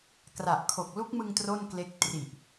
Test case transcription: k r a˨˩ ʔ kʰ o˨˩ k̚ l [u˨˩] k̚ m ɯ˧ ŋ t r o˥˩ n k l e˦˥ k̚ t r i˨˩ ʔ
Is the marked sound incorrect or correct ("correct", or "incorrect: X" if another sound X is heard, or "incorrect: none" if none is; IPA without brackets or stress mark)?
incorrect: u˦˥